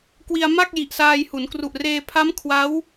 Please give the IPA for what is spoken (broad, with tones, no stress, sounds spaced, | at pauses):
k w i˧ a̯ m a˥˩ k̚ j i˨˩ ʔ s aː˧ j h u˩˦ n k r u˨˩ ʔ r eː˧ pʰ a˦˥ m kʰ w a˦˥ w